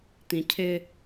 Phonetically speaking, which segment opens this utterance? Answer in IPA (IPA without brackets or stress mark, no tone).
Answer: t̪